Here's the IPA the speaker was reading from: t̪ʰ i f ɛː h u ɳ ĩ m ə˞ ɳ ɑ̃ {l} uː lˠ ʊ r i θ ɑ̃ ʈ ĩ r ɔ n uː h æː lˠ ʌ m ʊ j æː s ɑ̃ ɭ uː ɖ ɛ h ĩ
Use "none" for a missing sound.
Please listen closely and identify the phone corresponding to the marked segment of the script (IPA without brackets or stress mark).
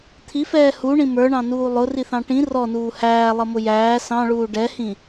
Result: n